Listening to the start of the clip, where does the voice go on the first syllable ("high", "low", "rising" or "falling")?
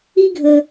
high